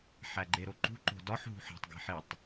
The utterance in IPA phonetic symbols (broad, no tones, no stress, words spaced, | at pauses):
ħæɡ͡ǃeɾoǃṳ ǃo̤dɒħ ɦṳħæ̤tˤ ɡe̤ħitˤ